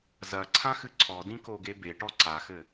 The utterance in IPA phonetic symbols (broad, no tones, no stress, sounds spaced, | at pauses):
z ɐ ǀʰ ã x ɨ ǀʰ ɔ d ĩ k o ɡ e b e ʈ ɔ ǀ a x ɘ